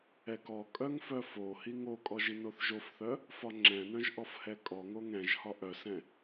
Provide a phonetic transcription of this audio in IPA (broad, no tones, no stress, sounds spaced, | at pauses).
ɛ k ɔ kʼ œ ŋ f œ f o h i ŋ o kʼ ɔ ʒ i n o θ ʒ o f θ œ | f ɒ ŋ͡ǁ ɛ̃ n œ̃ ʒ ʔ ɔ f h ɛ kʼ ɔ ŋ o ŋ ɛ̃ ʒ h ɒ ʔ œ s ɛ̃